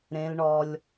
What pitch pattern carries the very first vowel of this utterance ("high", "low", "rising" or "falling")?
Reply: high